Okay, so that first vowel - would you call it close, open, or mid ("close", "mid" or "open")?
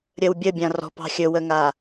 mid